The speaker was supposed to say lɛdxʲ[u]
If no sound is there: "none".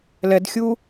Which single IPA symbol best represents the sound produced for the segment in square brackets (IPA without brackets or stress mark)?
u